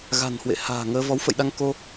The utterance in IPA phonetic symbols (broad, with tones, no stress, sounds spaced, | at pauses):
ɣ a̤˨˩ n h w ḛ˧˨ h a̤ː˨˩ ŋ əː˧ v ɔ˨˦ w f ə̰˧˨ j ɗ a˧ ŋ k o˧